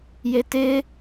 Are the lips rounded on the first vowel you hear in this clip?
no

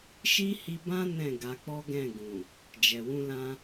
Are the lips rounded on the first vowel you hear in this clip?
no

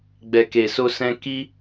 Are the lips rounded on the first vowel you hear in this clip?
no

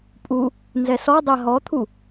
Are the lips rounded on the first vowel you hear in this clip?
yes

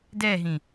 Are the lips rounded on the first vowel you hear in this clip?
no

